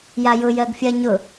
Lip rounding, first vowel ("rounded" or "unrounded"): unrounded